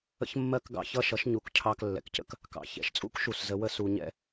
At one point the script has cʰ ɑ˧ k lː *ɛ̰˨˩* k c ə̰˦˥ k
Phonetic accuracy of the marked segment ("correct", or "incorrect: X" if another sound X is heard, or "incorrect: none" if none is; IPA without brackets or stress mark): correct